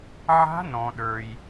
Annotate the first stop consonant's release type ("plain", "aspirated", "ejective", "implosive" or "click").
implosive